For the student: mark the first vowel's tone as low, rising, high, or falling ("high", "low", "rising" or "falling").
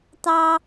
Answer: high